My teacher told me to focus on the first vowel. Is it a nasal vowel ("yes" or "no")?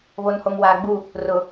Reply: no